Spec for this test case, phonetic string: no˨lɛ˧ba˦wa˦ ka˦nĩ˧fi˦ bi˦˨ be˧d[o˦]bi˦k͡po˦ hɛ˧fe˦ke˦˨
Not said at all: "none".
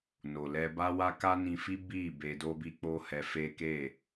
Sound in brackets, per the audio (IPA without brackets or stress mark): o˦